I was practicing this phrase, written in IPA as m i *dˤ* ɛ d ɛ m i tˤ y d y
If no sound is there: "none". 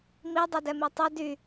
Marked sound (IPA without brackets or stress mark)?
dˤ